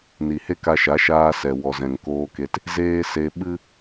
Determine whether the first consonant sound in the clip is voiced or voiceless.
voiced